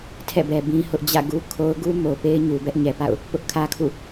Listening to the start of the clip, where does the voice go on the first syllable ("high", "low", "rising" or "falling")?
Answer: falling